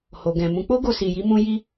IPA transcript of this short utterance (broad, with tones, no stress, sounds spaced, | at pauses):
h o˨ ɡ ɛ̃˨ m ũ˨˦ k͡p o˦ ɡ o˧ s i˧ j i˦ m ũ˦ j i˦